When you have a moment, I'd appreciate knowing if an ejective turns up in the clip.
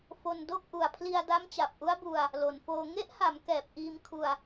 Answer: no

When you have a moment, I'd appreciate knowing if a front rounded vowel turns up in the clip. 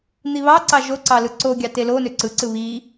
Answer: yes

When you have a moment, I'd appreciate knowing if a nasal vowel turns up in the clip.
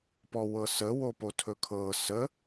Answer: no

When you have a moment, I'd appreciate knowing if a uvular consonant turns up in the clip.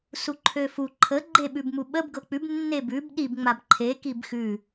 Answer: no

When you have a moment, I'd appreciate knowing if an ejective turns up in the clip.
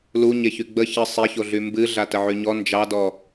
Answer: no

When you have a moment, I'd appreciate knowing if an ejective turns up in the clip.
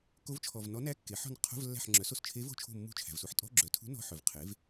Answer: yes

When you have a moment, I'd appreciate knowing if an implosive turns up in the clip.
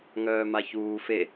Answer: no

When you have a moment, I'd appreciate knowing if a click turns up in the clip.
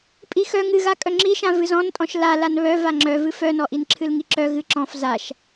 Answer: yes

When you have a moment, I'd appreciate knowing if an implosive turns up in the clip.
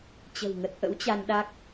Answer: yes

